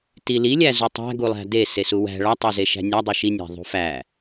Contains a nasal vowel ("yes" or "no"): no